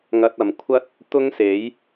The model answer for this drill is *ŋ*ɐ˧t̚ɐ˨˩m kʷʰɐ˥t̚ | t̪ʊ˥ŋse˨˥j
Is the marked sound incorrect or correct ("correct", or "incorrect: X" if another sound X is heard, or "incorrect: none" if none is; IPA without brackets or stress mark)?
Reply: correct